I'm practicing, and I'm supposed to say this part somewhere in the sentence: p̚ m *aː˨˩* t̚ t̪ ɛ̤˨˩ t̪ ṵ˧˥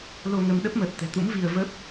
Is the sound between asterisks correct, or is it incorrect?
incorrect